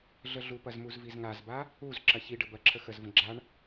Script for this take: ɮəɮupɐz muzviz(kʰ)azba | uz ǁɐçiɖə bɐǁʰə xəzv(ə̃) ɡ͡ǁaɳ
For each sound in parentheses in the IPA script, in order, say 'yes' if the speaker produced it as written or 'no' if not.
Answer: no, yes

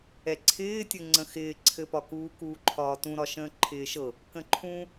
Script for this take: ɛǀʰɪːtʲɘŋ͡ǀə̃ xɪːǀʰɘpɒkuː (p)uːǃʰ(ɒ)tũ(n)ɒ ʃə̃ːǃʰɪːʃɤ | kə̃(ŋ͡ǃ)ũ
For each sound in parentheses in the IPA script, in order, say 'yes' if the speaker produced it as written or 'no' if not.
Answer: no, no, no, no

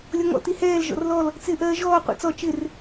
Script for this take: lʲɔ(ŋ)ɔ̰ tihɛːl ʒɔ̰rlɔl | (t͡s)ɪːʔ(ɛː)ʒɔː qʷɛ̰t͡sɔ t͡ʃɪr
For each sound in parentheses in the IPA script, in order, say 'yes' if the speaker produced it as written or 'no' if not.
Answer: yes, yes, no

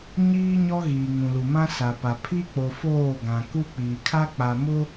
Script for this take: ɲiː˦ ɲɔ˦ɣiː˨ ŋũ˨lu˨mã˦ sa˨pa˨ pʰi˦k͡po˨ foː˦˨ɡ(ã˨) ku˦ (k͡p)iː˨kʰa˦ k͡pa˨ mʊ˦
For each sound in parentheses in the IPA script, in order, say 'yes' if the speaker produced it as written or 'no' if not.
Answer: yes, yes

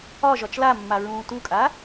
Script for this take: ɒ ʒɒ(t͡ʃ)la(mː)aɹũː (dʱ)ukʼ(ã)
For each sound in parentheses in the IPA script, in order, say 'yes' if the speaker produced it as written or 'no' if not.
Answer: yes, yes, no, no

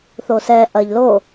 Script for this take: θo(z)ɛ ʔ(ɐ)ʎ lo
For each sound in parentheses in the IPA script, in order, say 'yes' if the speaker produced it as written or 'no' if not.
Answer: no, yes

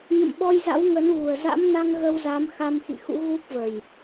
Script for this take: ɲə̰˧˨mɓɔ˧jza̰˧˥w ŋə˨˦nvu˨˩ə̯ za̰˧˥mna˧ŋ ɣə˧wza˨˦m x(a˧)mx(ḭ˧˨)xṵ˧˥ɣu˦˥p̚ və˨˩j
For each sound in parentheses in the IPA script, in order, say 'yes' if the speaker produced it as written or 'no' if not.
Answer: yes, yes

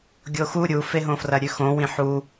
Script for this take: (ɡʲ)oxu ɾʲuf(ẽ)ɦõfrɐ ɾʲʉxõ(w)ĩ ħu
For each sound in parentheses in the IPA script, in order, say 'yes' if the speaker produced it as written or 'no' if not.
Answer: yes, no, yes

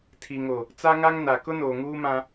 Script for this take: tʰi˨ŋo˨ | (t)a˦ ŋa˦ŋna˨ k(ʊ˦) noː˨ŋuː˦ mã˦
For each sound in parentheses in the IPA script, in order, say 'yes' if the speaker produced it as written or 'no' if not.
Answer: no, yes

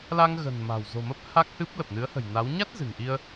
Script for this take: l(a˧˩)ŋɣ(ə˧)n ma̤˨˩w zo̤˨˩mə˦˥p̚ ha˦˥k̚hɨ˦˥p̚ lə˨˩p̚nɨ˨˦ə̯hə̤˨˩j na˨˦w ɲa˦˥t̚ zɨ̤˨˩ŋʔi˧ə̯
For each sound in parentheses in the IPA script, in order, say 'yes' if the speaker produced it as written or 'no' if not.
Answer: no, no

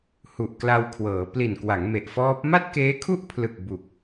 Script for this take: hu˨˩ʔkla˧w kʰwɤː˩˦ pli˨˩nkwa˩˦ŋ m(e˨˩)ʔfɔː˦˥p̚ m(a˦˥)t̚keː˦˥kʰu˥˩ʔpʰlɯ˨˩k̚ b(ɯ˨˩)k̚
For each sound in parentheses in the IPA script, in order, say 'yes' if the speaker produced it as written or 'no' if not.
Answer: yes, no, no

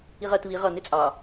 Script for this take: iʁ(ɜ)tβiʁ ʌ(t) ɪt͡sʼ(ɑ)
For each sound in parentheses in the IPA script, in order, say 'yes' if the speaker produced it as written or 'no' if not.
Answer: yes, no, yes

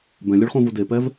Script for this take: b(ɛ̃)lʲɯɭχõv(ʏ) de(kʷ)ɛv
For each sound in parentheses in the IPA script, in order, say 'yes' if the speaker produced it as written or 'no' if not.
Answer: yes, no, no

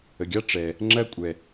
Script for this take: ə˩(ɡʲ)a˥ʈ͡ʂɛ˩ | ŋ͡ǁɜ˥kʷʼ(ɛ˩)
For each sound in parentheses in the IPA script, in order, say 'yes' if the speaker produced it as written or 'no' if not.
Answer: yes, yes

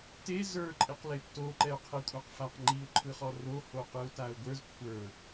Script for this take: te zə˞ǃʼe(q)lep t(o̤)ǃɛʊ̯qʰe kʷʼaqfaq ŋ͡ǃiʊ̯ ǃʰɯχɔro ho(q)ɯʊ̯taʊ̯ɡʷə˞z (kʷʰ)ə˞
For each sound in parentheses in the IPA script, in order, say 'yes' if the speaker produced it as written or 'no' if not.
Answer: yes, no, yes, yes

